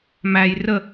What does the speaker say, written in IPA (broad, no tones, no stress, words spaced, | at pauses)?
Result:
mæj rə